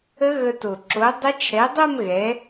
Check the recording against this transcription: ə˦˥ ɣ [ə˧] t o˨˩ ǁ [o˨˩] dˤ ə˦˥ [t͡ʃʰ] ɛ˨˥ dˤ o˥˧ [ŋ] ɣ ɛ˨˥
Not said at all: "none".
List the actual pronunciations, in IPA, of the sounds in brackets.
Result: ə˧, o˨˥, t͡ʃʰ, m

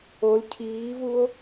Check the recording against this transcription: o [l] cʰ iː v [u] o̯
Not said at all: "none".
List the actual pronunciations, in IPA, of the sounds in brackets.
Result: l, u

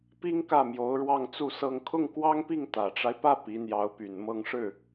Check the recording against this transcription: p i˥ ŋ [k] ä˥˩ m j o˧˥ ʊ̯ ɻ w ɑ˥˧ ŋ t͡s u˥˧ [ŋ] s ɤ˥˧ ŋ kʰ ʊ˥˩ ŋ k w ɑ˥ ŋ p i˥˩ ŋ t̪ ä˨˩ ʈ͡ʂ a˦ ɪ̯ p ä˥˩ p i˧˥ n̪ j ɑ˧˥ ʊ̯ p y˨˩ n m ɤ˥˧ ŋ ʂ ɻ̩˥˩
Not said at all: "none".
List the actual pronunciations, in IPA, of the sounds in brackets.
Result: k, none

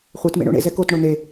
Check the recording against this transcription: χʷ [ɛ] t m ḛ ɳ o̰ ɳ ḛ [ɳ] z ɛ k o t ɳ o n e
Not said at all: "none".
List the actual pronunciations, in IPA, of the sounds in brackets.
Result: e, none

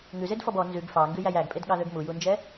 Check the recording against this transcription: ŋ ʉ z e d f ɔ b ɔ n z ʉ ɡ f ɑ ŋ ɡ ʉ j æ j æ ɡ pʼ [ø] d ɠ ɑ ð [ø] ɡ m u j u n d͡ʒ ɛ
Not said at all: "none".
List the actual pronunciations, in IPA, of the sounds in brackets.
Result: e, ø

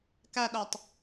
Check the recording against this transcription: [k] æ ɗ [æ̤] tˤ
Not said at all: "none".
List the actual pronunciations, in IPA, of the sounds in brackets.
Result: k, æ

